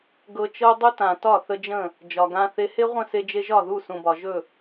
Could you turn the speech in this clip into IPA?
ɡɤ˧t͡ʃɤ˦ dˤɵ˦tã˨tɒ˦˨ θə˧d͡ʒə̃˦˨ | d͡ʒɒ˨ɡã˧θe˧ he˦ʁʷə̃˦˨se˧d͡ʒe˧ ʒɒ˦˨ðu˦˨ sũ˨bɒ˨ʒɵ˦˨

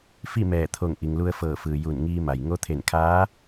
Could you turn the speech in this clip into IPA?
fi˥˨mɛː˧˩t̪ʰo˧˩ŋ ʔi˩ŋlu˧ə̯fɤː˧˩fɯː˩ ju˧˩nŋiː˧ ma˩jŋo˧˥t̪ʰe˧˩nkʰaː˧˥

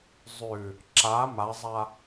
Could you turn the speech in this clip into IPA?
zˤʉ | ǁa mazˤa

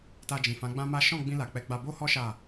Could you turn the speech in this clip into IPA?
ta˧d͡ʒĩ˨fã˨˦ ɡ͡bã˦ma˦ ʃɔ̃˦˨ɡ͡bĩ˧la˨ k͡pɛ˨˦ɡ͡ba˧bo˦hɔ˦ ʃa˦˨

